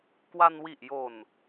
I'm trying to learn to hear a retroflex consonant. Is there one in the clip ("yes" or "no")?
no